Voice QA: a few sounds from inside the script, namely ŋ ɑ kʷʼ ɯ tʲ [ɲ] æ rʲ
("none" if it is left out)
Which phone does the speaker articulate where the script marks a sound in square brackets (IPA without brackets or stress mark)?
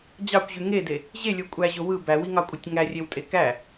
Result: ŋ